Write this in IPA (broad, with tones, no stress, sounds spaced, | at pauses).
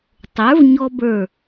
tˤ ə˞˩˥ v ɲ ɔ˧ b ə˞˧˩